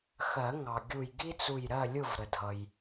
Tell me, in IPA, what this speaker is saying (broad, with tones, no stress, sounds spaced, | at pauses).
x ɜ˨˩˦ ŋ ɑ˩ ɡʲ u˧˩ j ɡ i˥ t͡s u˧˩ j ɾ ɜ˥˨ lʲ ʊ˥˨ v ɾ ə˩ dʱ ʌ˩ j